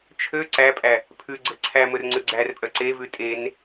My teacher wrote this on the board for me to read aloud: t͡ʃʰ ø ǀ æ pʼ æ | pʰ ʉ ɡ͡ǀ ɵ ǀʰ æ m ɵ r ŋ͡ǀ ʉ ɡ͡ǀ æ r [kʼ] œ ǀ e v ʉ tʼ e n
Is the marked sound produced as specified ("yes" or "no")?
no